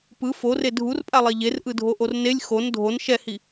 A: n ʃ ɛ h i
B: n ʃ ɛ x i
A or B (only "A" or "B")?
A